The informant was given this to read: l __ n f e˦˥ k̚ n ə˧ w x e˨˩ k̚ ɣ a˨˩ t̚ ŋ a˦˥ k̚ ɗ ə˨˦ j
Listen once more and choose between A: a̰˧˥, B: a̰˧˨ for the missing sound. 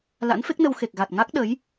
A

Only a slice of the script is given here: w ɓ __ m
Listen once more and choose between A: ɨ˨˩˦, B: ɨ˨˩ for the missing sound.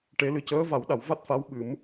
A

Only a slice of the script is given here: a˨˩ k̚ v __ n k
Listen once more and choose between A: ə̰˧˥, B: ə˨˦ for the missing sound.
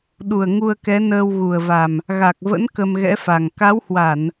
A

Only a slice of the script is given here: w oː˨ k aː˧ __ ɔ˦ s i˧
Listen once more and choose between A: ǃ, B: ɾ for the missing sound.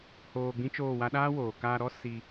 B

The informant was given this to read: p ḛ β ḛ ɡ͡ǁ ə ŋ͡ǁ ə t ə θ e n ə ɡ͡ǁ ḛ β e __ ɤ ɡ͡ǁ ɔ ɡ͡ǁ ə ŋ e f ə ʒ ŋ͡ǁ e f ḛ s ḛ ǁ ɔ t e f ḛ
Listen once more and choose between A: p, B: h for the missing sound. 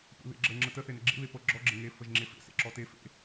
A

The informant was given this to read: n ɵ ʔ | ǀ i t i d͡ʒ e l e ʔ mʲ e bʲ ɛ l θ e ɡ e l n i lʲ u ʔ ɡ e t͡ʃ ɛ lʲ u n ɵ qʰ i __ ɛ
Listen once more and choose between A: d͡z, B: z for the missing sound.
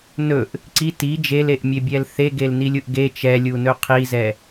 B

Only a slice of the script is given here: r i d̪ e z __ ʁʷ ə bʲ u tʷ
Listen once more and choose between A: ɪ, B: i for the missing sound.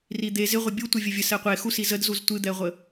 A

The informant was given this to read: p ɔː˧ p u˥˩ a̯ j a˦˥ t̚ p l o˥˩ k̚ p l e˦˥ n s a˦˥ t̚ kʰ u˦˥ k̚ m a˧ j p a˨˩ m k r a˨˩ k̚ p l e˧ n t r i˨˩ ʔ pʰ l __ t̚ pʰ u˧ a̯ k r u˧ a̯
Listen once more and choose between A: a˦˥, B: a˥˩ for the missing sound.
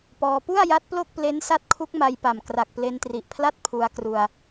B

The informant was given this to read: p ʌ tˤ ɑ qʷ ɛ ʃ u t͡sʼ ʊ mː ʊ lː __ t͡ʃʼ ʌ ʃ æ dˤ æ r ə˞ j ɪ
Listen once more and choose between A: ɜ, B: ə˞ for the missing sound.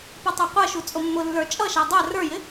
B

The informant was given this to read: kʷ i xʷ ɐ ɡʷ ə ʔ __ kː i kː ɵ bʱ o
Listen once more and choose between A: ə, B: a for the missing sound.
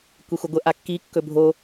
B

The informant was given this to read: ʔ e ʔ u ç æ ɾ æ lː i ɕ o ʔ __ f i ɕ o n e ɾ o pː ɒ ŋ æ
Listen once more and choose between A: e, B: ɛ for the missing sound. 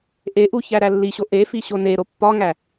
A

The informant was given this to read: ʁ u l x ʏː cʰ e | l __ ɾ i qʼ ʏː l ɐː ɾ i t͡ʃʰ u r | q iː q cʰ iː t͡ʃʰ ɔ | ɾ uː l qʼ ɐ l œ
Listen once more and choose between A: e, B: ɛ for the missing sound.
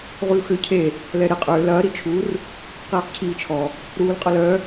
B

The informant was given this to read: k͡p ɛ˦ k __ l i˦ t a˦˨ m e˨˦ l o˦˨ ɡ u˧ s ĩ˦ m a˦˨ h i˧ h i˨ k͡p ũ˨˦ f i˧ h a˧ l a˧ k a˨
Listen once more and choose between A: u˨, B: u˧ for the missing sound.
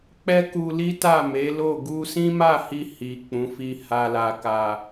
B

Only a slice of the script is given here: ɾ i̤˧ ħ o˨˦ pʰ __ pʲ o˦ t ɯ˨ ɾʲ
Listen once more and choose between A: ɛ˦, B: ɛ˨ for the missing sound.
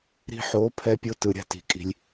A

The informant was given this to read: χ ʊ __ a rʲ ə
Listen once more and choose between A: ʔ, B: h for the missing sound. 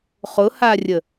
B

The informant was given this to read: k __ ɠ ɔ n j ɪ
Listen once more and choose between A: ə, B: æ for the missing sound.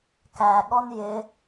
B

